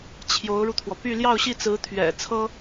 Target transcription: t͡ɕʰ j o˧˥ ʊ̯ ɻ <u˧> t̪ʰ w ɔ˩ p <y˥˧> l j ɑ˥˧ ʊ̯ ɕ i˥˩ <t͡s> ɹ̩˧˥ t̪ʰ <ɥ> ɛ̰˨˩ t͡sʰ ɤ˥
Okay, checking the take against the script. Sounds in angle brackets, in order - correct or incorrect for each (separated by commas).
correct, correct, correct, correct